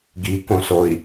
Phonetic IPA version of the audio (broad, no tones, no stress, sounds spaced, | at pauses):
ɡ i k õ s o i̯